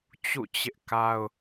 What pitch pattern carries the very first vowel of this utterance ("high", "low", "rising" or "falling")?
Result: falling